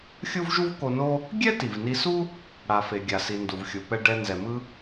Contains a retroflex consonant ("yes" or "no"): yes